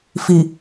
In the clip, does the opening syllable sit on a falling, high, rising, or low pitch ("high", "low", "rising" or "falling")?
low